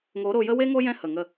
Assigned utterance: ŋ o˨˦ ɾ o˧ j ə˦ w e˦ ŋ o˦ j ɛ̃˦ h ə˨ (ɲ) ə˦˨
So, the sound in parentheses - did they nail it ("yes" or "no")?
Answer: no